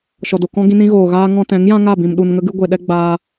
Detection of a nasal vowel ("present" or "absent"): present